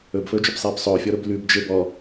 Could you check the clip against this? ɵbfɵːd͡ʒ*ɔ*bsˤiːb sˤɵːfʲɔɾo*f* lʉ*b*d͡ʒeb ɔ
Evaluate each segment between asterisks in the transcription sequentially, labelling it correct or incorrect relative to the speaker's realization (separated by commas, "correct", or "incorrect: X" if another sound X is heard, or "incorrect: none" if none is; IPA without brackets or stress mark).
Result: incorrect: ɵ, incorrect: b, correct